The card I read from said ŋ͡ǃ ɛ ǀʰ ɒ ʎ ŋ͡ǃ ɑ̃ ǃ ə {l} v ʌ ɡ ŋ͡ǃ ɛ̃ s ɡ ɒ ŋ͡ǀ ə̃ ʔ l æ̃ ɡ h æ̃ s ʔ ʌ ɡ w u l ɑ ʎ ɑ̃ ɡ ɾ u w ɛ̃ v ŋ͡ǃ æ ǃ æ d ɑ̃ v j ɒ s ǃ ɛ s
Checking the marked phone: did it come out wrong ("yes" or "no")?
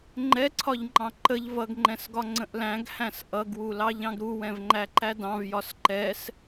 yes